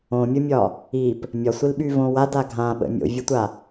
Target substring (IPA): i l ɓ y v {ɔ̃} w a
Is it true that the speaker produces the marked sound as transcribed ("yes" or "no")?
no